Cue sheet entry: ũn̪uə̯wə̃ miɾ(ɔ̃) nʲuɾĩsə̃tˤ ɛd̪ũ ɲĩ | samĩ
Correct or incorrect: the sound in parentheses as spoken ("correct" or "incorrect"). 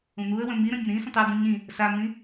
incorrect